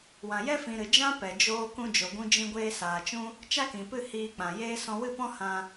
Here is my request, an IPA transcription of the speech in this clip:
w ã˨ j ɛ˦ f ĩ˨ ɾ ɨ˨ d͡ʒ ã˦ p ɛ˨ d͡ʒ oː˧ k ũ˧ d͡ʒ o˨ ɡʷ ũ˧ d͡ʒ ĩ˧ ɡʷ eː˧ s aː˨ t͡ʃ ũ˦ | t͡ʃ a˦ k ĩ˨ p ɨ˦˨ h iː˧ k͡p ã˨ j eː˦ s ɔ̃˧ w ɨ˦˨ p ɔ̃˦ h ã˧

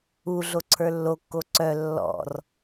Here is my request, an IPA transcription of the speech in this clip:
u ɮ o ǀʰ ə˞ lː o kː o ǀ œ lː ɔ̰ r

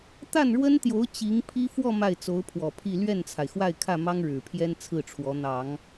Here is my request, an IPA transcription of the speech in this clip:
t̪ a˥˩ n ɻ w ə˥ n t̪ j o˧˥ ʊ̯ t͡ɕ i˧˥ ŋ pʰ i˥ f w ɔ˥˧ m a˥˩ ɪ̯ t͡s o˧˥ ʊ̯ pʰ w ɔ˨˩ pʰ i˥˧ l ɥ ɛ˥˩ n t͡sʰ a˩ ɪ̯ x w a˥˧ ɪ̯ kʰ ä˥˩ m ɑ˥ ŋ ɻ ɻ̩˨˩ pʰ j ɛ˥ n t͡sʰ ɹ̩˥˩ ʈ͡ʂʰ w ɔ˧˥ n̪ ɑ˨˩˦ ŋ

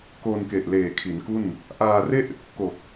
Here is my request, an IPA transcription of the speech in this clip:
k o˧ n k e˨˩ ʔ l eː˨˩ kʰ i˩˦ n k u˥˩ n | ʔ aː˧ r e˥˩ ʔ | k o˨˩ k̚

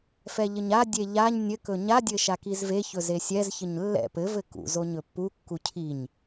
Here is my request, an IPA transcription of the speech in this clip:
f ɛ ʎ ɘ ɲ a dʲ e ʎ a ɲ nʲ ɘ k ɵ ɲ a dʲ ɘ ʃ a k i z v e ç ɵ z e sʲ ɛ z ç ɘ ɲ lː ɛ̰ p ɘ v ɘ k ṵ z o ɲ ɵ pː u kː u cʰ i ɲ

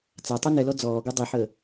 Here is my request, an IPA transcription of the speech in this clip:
t͡s a tˤ y n ɛ l ɔ d͡z ɔː ɡ u dˤ i ħ əː

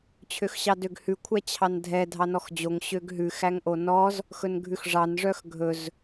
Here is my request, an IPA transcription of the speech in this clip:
t͡ɕʰ ø x ɕ ɑ d ø ɡ h ʉ kʷʰ æ t͡ɕʰ ɑ n dʱ ɛ dʱ ɑ n ɔ x d͡ʑ o ŋ ɕ ø ɡ ɦ ʉ x æ ŋ ʔ o n ɔ z | x ɵ n ɡʱ ʉ x ʐ ɑ n ʐ œ x ɡʱ ɵ z

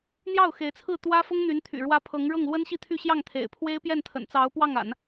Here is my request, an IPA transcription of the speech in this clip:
n̪ j ɑ˥˩ ʊ̯ x e˧˥ ɪ̯ t͡sʰ ɹ̩˥˩ t̪ w ä˥ f ʊ˥ ŋ n̪ y˧˥ n t̪ʰ y̰˨˩ ɻ w ä˥ pʰ ɤ˧˥ ŋ ɻ ɤ˥˩ ŋ l w ə˥ n ɕ i˥˧ t̪ʰ y˥˧ ɕ j ɑ˥˩ ŋ t̪ʰ ḛ˨˩ ɪ̯ pʰ w e˥ ɪ̯ p j ɛ˥˩ n t̪ʰ ə̰˨˩ n t͡s ɑ˧˥ ʊ̯ p w ɑ˥˩ ŋ a̰˨˩˦ n

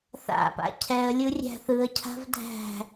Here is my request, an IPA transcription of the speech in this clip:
θ a̰ p a̰ cʰ ɛ ə̯ lʲ ɯ rʲ æ̤ θ ɯ ə̯ cʰ a̤ v dʱ æ̤

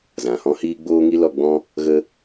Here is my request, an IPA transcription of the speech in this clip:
z ã˨ h ɔ̃˦ h iː˦ ɡ͡b oː˦ ŋ i˦ l ɔ˧ ɡ͡b ɔ̃˦ | ɣ ə˦

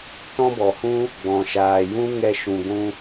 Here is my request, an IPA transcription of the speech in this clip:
t ɔ̃˦ b ɔ˨ h ũ˦ | ɡ͡b ɔ̃˨ ʃ aː˨ j ũ˦ ŋ ɛ˧ ʃ ũ˨ ɡʷ ũ˧

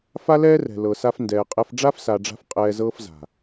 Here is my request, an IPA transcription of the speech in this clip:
f a˦ l ɛː˦ r ɛ̤˨ l ɤ˨ s a˧ f n d ɛː˨ qʼ ɛ˧ f ɖ͡ʐ a˦ f s a˨ ɖ͡ʐ a̤˧ f qʼ ɛː˧ z ɤː˦ f z a̤˨

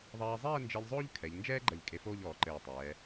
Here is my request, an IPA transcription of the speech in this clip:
ðˤ ɐː˧ zˤ ɛː˥˧ n d͡ʒ e˧ ʎ zˤ oː˥ ʎ kʰ ɛ˩˧ ʎ n d͡ʒ ɛː˥ ɡ͡ǃ ɐ˧˩ ʎ kʼ e˧ f oː˥˧ ʎ ɔː˩˧ ǃ ɘː˧˩ tˤ ɛː˩˧

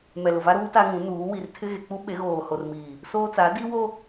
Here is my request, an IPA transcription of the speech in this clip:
m ɛ˨ l ʊ˨ v a˦ ɾ uː˦ t a˦ ŋ ũ˨˦ n uː˨˦ w i˨ r tʰ ɪ˦ ɣ e˨ k͡p u˦ ɓ e˨˦ ɣ oː˨ h o˨ r m iː˨ | s oː˦ t͡s a˨˦ d i˦ w o˦

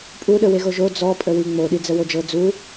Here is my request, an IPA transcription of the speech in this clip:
pʼ u ɗ ə w e ɣ o ʒ o d͡z ɔ pʼ ə w i ŋ͡m o ɗ i d͡z ə w o d͡ʒ ɤ d͡z u

